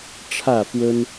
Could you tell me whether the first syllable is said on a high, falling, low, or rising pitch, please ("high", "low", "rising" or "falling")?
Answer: falling